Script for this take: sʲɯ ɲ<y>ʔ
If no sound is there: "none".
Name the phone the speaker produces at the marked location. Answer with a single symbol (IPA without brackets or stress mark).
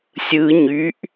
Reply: y